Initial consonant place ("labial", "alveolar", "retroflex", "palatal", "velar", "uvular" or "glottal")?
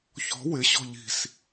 palatal